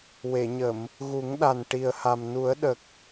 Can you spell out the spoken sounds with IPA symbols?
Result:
w e˨˩˨ ɲ ə˨˩˨ m | ɣ u˨˩˦ ŋ ɗ a˨˩ n ʈ i˨˩ ə̯ h a˨˩ m n u˨˩˦ ə̯ ɗ ə˨˩ k̚

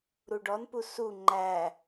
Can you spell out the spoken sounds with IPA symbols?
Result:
ɾ u ɖ ɔ n p u s u ŋ͡ǃ æ

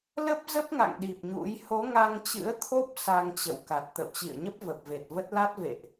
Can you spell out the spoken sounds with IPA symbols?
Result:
l ə˦˥ p̚ z ə˦˥ p̚ ŋ a̰˧˨ ŋ ɗ i˨˩ p̚ ɲ ṵ˧˥ j h o˨˦ ŋ a˧ ŋ t͡ɕ ɨ̰˧˥ ə̯ t̪ʰ o˦˥ p̚ s a˧ ŋ t͡ɕ ə̰˧˨ w k a˨˩ t̚ t̪ ə̰˧˨ w t͡ɕ ḭ˧˨ ə̯ ɲ ə˦˥ p̚ v ə˨˩ p̚ v e˨˩ t̚ v ə˦˥ t̚ l a˦˥ t̚ v ḛ˧˨ ʔ

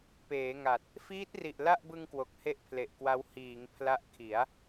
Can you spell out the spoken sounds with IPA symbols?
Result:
p eː˩˦ ŋ a˨˩ t̚ | f iː˦˥ t̚ r i˨˩ ʔ l a˥˩ ʔ b ɯ˧ ŋ k w o˨˩ k̚ h e˥˩ ʔ pʰ l e˨˩ ʔ k w a˦˥ w h iː˩˦ ŋ pʰ l a˦˥ ʔ kʰ i˩˦ a̯

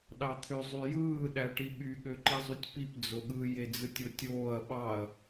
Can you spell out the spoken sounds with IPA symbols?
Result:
ɗ ɑ t̪ʰ ø zˤ y j ɯː ɗ æ ʈ i ɓ y ɠ ø ǃ i zˤ u tʲ p i p d͡z o ɠ ɯ j e d͡z ɯ tʲ o tʲ oː ɐ̯ ɓ ɑ ɐ̯

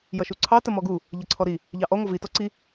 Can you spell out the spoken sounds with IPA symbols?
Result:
j ʌ ʃ u ǀʰ ɑ t ə m ɔ ɡ u | ʎ ʌ ǀʰ ɔ ɾ i | ʎ ɑ ʔ ɔ ŋʷ ʌ v i t ɔ ǀ i

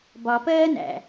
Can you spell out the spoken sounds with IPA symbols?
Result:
b ɒ p ɜː n æ̰

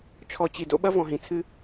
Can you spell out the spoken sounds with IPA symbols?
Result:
t͡ʃʰ ɔ˨ t͡ɕ i˨ d o̰˦ ɓ ɐ˦ v ɔ̃˨ ɦ ĩ˨ t͡sʰ ɨ˦

